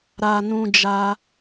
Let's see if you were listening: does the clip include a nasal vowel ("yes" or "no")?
yes